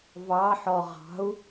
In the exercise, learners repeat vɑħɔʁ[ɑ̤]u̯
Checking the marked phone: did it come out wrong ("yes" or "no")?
no